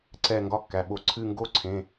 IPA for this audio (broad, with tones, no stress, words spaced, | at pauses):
ǀɛ˦˨ ŋɡɒ˦˨kːæ˩˧˩ɓo˧˩˧ ǀʰɨ˦˨ŋɡo˥ǀʰẽ˩˧˩